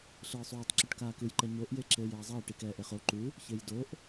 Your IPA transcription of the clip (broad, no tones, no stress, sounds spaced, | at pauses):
ɬ ɯː sˤ uː tˤ ǁ u ʈ k aː k ɯ j ǃ ɛ ɲ o ʔ j e ǁ eː j ɛː zˤ ɛː ʈ i k ɛː ʔ e χ o ǃ u | ç e j d o ʔ